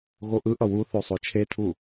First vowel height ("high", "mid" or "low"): mid